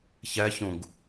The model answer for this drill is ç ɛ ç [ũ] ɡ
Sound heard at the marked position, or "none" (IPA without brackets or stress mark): ũ